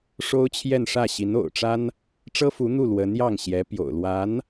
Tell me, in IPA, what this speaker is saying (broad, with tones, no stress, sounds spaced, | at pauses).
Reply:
ʂ o˥ ʊ̯ t͡ɕʰ j ɛ˥˧ n ʂ ä˥˩ ɕ i˧˥ n o̰˨˩ ʊ̯ ʈ͡ʂ a˥ n | ʈ͡ʂ ɤ˥ f u˧˥ n̪ u˥˩ l w ə˧˥ n j ɑ˥˩ ŋ ɕ j ɛ˧˥ p j o̰˨˩ ʊ̯ l w a˧˥ n